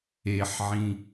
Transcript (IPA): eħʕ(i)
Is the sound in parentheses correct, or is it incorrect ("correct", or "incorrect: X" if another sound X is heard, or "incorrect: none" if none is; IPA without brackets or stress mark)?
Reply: incorrect: ĩ